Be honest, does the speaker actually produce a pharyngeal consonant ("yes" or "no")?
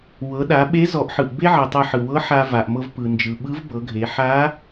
yes